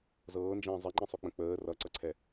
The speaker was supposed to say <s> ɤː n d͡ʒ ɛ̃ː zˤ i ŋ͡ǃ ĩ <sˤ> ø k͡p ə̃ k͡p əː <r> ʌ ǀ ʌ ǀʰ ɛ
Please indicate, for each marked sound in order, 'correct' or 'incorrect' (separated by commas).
incorrect, correct, correct